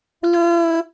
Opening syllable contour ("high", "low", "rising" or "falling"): high